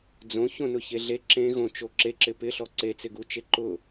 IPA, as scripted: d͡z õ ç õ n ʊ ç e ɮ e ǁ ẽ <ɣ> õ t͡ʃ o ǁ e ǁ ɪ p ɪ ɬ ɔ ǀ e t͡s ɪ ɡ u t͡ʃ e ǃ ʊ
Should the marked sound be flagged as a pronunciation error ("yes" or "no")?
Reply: no